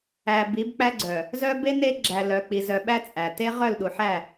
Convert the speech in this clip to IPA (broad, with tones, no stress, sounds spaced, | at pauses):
æ˨ b i˨˦ b k͡p æ˦ ɡ͡ǀ œ˨ | z œ˦ b e˦ n e˦ ɡ͡ǁ æ˨ l œ˨ k͡p i˨ z œ˨ ɓ æ˦ t͡sʼ æ˨ t e˦ ʁ œ˦˨ l ɗ u˨ ħ æ˦˨